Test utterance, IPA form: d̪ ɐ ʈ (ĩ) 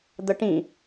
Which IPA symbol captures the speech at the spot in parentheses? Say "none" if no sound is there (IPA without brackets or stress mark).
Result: ĩ